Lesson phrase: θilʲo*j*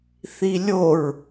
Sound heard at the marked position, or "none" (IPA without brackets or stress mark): ɹ